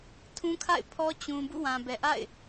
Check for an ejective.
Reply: absent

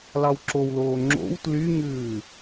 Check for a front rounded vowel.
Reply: present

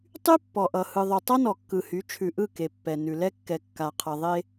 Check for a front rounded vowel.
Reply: present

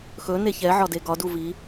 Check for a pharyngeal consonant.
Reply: present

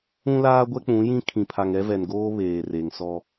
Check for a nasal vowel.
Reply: present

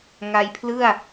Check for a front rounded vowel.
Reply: absent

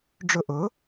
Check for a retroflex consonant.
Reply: present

